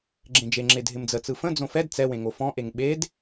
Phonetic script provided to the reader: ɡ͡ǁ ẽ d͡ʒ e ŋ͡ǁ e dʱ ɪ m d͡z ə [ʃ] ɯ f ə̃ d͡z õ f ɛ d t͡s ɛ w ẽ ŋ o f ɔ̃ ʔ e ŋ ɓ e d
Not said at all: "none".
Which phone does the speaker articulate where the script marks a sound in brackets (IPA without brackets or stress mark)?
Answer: t͡s